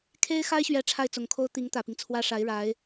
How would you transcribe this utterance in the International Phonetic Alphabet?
kʰe˥ɪ̯xa˥ɪ̯ɕɥɛ˧˥ ʈ͡ʂʰa˥˩ɪ̯t͡sʊ˨˩ŋkʰo˥ʊ̯ t̪i˧˥ŋ t̪ä˨˩pi˦ŋt͡sʰwä˥ ʂa˧˥ɪ̯ɻa˧˥ɪ̯

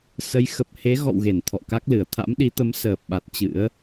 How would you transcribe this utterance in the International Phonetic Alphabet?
sə˨˦j xə˨˩p̚he˨˦ɣɔ̰˧˨wɣe˧˩n t̪ʰɔ̰˧˨ka˦˥k̚lɨ˨˩ə̯ t̪ʰa̰˧˥mɗi˨˦t̪ə˨˦m səː˨˩p̚ɓa˨˩t̚ t͡ɕɨ̰˧˥ə̯

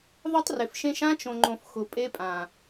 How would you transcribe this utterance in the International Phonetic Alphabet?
ðˤʊ˦tˤrɪ˨fʃẽ˦ʃ ã˦t͡ʃõ˨ŋ͡ǃõ˨f xʊ˨ pʼe˦pʼã˨

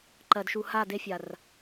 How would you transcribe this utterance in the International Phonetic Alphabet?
ǃɜ˨d ʃu˨ha˦˨de˦fʲa˨r

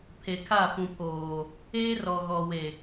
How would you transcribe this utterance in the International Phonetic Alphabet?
pʰe˨kʰa˦˨fũ˨pʰoː˨ | eː˦rɔ˨ɣɔ˨we˨

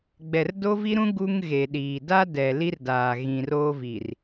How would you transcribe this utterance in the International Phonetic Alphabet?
ɡ͡bɛ˨rdo˦vi˦ɾũ˦ ɡu˦ŋ ɣe˨ɗiː˨ da˦ dɛ˨ li˦rdaː˨ ɣĩ˨roː˦ vi˨r

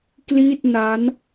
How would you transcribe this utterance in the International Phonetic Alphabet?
kli˥˩t̚na˦˥n

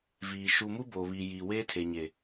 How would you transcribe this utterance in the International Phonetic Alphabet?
viː˨ ʃu˨mu˦ boː˨βiː˨jiː˨ weː˦tʰe˨ɲe˨

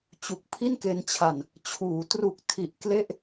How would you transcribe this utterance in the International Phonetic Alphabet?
t͡ɕu˨˩k̚pʰi˥˩nke˧nt͡ɕʰa˧n | t͡ɕʰuː˩˦ tru˨˩k̚tʰi˨˩ʔ kle˥˩ʔ

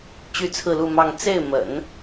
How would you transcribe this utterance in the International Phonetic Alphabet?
t͡ɕy˥t͡sʰɹ̩˥˧lu˥˧mɑ˥˧ŋ t͡se˥˩ɪ̯ mə̰˨˩˦n

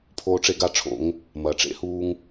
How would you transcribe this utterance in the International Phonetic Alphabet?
pʰoː˦ʈ͡ʂe˦ɡa˦ʈ͡ʂʰo̰˨˦ŋ | mɐː˨ʈ͡ʂḛ˦huː˦ŋ

